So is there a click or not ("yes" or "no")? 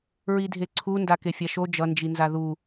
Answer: yes